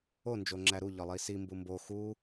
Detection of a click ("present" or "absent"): present